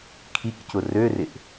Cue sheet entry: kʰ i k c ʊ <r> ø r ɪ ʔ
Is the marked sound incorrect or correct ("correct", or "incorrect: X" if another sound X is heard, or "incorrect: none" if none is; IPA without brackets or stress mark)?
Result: correct